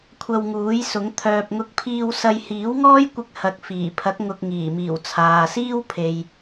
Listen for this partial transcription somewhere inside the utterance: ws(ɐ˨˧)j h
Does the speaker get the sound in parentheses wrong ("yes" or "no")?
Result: yes